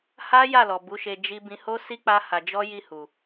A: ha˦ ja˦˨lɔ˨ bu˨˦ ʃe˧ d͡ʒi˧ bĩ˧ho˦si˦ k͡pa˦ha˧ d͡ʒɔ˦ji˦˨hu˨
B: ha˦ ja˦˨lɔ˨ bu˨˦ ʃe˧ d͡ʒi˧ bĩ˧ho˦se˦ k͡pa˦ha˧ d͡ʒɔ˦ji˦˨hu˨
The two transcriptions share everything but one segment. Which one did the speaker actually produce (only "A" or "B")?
A